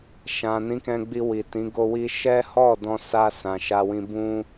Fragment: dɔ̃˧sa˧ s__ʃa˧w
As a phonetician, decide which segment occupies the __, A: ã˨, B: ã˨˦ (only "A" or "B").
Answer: A